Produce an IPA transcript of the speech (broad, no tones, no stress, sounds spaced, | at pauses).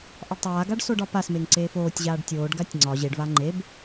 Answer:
ʔ ɒ ɖ tˤ aː ɡ a ɖ s o ɖ ɒ p a s m e ŋ ǀ eː f oː tʲ ʑ aː ɖ tʲ oː ɖ ɡ a tʲ ŋ͡ǀ ɒ ʑ e ɖ v a ŋ͡ǃ e b